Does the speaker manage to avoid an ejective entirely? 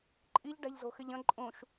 no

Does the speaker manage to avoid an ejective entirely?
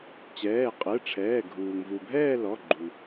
no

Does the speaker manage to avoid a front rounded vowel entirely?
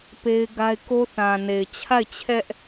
yes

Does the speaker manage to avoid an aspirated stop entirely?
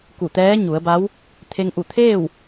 no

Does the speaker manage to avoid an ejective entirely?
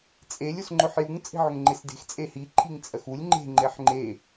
no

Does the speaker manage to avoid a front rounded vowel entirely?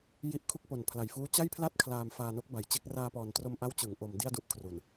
yes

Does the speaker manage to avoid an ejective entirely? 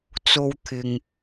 yes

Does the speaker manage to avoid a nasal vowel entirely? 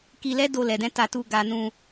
no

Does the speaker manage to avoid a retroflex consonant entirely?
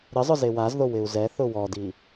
yes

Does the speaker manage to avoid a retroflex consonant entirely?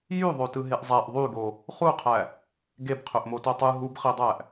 yes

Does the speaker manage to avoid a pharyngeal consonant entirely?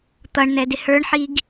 no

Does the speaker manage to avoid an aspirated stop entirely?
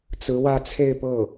no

